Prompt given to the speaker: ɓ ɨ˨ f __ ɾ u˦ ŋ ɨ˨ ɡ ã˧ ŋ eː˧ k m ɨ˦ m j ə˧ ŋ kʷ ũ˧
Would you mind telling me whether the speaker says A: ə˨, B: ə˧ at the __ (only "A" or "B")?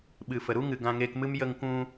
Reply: A